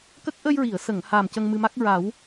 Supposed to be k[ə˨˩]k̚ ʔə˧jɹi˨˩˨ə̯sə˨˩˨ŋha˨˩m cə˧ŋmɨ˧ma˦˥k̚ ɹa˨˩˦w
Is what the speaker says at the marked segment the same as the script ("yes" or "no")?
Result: no